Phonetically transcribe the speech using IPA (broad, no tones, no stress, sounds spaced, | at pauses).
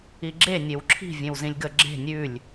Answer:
i ɡ͡ǁ e nʲ e w ǁʰ i̤ vʲ ẽ w z ĩ lʲ ɡ ə ɡ͡ǁ e̤ nʲ ʉ lʲ